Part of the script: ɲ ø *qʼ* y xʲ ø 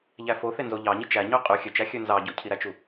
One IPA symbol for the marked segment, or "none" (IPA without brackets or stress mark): qʼ